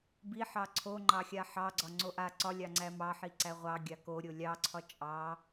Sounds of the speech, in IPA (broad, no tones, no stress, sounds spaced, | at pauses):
b i ħ ɑ ǀʰ o ŋ͡ǃ ɑ xʲ a ħ ɑ ɡ͡ǀ ɒ ŋ͡ǀ o ʔ a ǀ ɒ lʲ ɑ ŋ͡ǀ æ m ɑ ħ i ǀ æ ʁʷ ɑ ɡʲ a k o ɾʲ o lʲ ɑ ǀʰ ɒ t͡ʃʼ ɑ